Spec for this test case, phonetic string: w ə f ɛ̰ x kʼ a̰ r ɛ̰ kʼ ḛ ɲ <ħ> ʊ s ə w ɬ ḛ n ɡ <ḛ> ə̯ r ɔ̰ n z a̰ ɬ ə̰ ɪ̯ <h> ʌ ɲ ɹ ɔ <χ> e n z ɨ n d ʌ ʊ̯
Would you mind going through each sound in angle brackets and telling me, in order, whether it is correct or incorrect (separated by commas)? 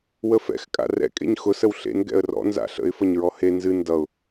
incorrect, incorrect, incorrect, incorrect